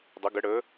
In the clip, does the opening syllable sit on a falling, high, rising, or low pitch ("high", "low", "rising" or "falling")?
rising